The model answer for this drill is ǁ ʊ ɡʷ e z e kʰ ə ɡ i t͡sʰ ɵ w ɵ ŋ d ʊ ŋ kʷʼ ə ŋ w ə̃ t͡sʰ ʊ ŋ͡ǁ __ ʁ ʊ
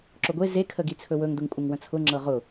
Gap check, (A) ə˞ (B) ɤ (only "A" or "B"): B